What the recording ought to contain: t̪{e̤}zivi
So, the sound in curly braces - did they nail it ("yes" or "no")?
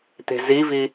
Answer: yes